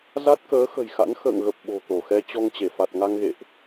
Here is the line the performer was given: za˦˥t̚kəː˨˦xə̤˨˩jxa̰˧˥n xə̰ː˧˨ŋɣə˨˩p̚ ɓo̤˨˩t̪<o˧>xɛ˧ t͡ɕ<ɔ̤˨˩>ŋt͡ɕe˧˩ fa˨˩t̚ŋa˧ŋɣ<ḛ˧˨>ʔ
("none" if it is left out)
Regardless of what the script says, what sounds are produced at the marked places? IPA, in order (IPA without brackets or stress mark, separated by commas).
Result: o˧˩, ɔ˧, ḛ˧˨